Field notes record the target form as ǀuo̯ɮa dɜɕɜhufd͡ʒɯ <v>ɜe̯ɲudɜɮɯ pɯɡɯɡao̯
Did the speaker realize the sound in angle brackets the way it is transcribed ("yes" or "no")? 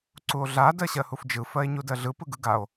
no